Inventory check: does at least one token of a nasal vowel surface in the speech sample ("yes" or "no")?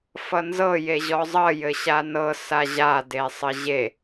no